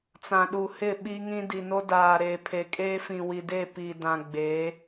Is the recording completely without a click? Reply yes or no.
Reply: yes